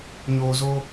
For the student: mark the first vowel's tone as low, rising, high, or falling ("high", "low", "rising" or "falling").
low